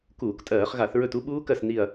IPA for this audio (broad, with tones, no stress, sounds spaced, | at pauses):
k uː˧˩˧ k tʼ ɜː˧˩˧ χ ɣ a˧˩˧ θ ɹ ɵ˦˨ t u˦˥ ɓ uː˦˥ k ɜ˦˨ s n i˦˨ ɐ̯